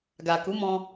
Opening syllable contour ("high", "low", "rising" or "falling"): low